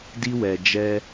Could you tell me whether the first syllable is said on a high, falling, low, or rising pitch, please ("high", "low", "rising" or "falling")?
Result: high